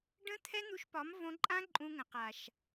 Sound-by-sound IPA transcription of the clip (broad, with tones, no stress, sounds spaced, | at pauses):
ɖ ə̃˦ t̪ʰ ɛ˦ n̪ u˧ ʃ p ɒ˨˦ m v õ˧ ǃʼ ã˦ ǃʼ ũ˧ ŋ ə̃˨ q a˨ ʃ